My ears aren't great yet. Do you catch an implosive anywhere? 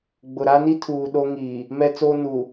yes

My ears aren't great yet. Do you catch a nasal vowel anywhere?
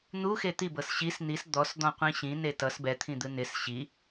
yes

